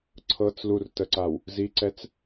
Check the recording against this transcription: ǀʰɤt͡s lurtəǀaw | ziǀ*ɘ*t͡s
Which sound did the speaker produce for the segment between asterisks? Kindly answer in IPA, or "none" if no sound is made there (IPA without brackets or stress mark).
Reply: ɛ